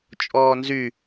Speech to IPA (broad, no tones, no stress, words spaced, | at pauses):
t͡ʃʼɔːnzy